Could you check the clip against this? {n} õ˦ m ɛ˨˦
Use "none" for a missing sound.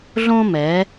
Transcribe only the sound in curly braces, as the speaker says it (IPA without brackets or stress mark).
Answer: ɮ